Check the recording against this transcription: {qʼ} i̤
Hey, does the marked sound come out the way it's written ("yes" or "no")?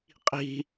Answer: yes